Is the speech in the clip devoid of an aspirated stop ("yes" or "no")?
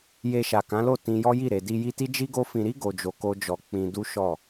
yes